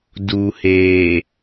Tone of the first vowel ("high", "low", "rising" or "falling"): low